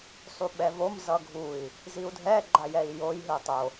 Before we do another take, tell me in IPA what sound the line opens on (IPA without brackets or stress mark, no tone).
sˤ